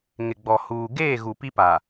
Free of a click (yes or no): yes